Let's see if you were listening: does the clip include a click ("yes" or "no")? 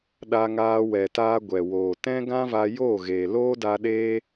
no